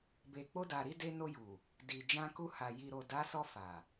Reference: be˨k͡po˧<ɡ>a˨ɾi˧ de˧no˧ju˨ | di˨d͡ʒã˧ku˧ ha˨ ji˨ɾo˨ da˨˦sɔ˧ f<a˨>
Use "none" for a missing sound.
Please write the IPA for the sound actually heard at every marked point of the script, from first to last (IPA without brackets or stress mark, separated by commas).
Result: d, a˨